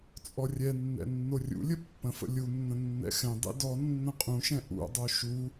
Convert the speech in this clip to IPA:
t͡sʼ ɔ rʲ ɛ nː ɛ̰ nː o rʲ ṵ lʲ ə pː ə̃ f ə̰ lʲ u nː ə̃ nː ɛ̰ x ɛ̃ dˤ ḭ d ɔ nː ə̃ qʼ ũ ʃ ɛ̃ ʔ ṵ dˤ o ʃ u

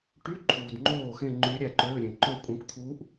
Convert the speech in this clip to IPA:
ʈ y˧˥˧ ǃʰ uː˨ d ŋ͡ǃ oː˥˩ x ẽ˥˧ ŋ͡ǃ y˧˥ ɾʲ æ˥˩ ǃ øː˧˥˧ ɾʲ ẽ˨ ǃ ø˥˧ kʷʼ ẽ˧˥ kʷ t̪ʰ u˧˥ ʔ

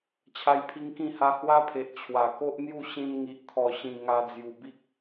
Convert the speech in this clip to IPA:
t͡ɕʰ a˦ j pʰ i˦ ŋ k ĩ˥˧ h a˦ h w a˦ pʰ e˨ ʔ t͡ɕʰ w a˨˩ k o˦ ʔ n̪ j u˥˧ ɕ ĩ˧ n ŋ i˨ ʔ t̪ʰ ɔ˨˩ ɕ ĩ˨˩ ŋ a˧ d͡z j u˨˩ b i˦ k̚

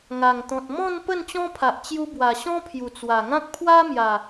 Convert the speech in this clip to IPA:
ŋ a˨˩ ŋ t̪ ɔ̃˨ t̚ m ɔ̃˥˧ n p ə˥˧ n t͡ɕ ɔ̃˦ pʰ a˨ ʔ t͡ɕ j u˧ b w a˨˩ ɕ ɔ̃˦ pʰ j u˨˩ t͡s w a˨˩ ŋ ã˦ k̚ pʰ w a˦ m j a˨˩

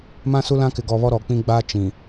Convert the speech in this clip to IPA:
m ã˦ s u˦ l ã˦ k ɪ˨ ɡ ɔ˨ β ɔ˦ ɾ ɔ˨ k͡p ĩ˦ ɡ͡b a˦ t͡ʃ ĩ˨

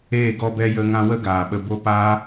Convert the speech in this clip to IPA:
eː˦˨ ɡ ɔ˧ b ɛ˧ j ə˧ ŋ ã˧ w ə˦ ɡ aː˨ ɓ ə˧ b o˦ p aː˦

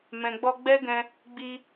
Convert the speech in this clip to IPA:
m ɛ̃˨ ɡ͡b ɔ˧ ɡ͡b ɛ˦ ɡ ɛ̃˧ | ɡ͡b i˧

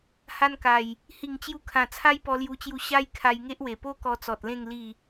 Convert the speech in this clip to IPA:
h a˧ n k a˨˩ j | h i˨˩ ŋ t͡ɕ j u˧ kʰ ã˨˩ t͡sʰ a˦ j p ɔ˧ l j u˧ t͡ɕ j u˧ ɕ a˦ j kʰ a˧ j ŋ e˦ ʔ w e˨˩ p o˦ k ɔ˧ t͡s ɔ˨ t̚ l ẽ˥˧ ŋ l i˥˧

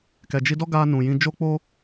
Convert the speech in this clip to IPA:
k ɛ˨ d͡ʒ i˧ d ɔ˦ ɡ aː˧ n ũ˨ j ĩ˧ d͡ʒ o˦ k͡p o˦

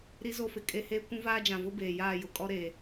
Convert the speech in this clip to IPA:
ɾ i˦ z o˦ f ɪ˨ kʼ e˦ h eː˦ kʷ ũ˦ v aː˦ d͡ʒ ã˨ v ʊ˦ b eː˨ j aː˦˨ j ʊ˨ kʼ ɔ˦ ɾ e˨

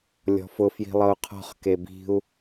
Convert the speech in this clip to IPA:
lʲ ɔ̤ f ʊ f j i̤ lˠ ɤ u̯ qʰ ɔ̤ χ k e b i̤ u̯

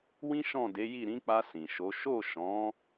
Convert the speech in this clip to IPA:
w ĩ˦ ʃ ɔ̃˦˨ d e˨˦ j i˦˨ ɾ ĩ˨˦ k͡p a˧ s ĩ˨ ʃ o˨˦ ʃ o˦˨ ʃ ɔ̃˨˦

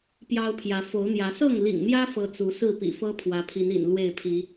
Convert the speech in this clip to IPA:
p j ɑ˦ ʊ̯ pʰ j ä˨˦ f o˨˦ ʊ̯ n̪ j ä˨˦ s ɤ˥˨ ŋ l ḭ˨˩ ŋ n̪ j ä˦ f ɤ˦ t͡s u˨˦ s ɹ̩˥˨ p ḭ˨˩ f ɤ˦ pʰ w ä˨˦ pʰ i˨˦ n ḭ˨˩ n l w e˥˨ ɪ̯ pʰ i˨˦

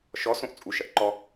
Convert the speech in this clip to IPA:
ʃ ɔ s õ ʔ t͡sʼ u ʃ ɐ ʔ ǃ ɔ

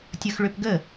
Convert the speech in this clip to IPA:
tʲ ɤ x ɭ ø p ɡ ə

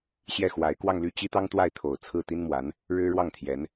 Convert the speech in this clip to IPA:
ɕ j ɛ˥˩ x w a˧˥ ɪ̯ k w ɑ˥˧ ŋ l y˥˩ t͡ɕ i˥ t̪ ɑ˥ ŋ t̪ w a˥˩ ɪ̯ t̪ʰ o˨˩ ʊ̯ t͡sʰ ɹ̩˥˩ t̪ i˥ n m w a˧˥ n | ɻ ɻ̩˥ ɻ w ɑ˥˩ ŋ t̪ʰ j ɛ˧˥ n

